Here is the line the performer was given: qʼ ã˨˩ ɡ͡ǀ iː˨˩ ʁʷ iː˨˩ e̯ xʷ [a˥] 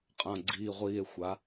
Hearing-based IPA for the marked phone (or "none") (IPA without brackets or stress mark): a˩˧